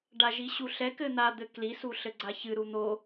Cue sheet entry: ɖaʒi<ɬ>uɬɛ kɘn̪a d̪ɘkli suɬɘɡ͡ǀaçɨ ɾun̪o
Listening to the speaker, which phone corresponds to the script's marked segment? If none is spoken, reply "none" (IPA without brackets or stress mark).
ɕ